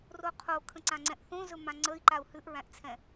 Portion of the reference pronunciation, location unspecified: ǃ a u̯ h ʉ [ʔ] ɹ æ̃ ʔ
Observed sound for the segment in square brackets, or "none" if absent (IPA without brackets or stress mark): ʔ